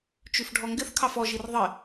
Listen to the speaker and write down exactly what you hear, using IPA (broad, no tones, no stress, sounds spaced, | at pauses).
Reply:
t͡ʃ ʉ f ɖʱ ɔ ŋ ɡ ɪ θ kʰ ɑ f ɔ ʒ i r ðˤ ɪ